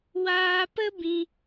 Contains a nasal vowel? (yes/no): yes